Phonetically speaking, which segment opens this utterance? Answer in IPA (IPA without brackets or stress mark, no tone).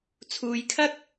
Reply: t͡sʰ